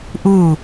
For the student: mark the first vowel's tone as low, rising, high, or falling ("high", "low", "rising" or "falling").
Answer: falling